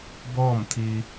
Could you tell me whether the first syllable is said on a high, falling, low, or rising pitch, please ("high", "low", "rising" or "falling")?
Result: falling